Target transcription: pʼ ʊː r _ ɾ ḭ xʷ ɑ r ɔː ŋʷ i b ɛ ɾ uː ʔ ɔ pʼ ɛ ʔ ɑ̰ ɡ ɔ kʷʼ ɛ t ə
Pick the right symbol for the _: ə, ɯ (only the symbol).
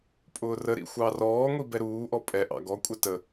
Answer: ə